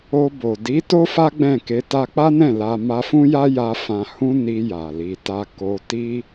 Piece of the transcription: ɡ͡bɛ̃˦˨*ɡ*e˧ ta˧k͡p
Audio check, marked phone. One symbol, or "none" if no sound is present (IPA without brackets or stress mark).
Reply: k